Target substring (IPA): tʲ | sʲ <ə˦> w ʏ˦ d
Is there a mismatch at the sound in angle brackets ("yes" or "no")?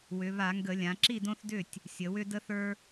yes